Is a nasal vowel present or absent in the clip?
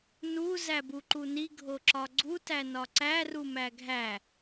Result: absent